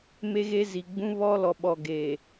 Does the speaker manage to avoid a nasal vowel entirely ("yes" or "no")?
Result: no